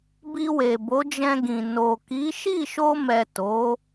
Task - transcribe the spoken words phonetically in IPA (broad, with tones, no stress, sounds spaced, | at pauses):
b i˧ w e˨ b o˨˦ d͡ʒ ɛ̃˧ ɡ ĩ˨ n o˨ k i˨˦ ʃ i˦˨ ʃ o˧ m ɛ˨ t o˨˦